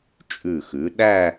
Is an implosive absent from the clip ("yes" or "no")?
no